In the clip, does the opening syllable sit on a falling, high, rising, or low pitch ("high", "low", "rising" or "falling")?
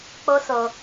high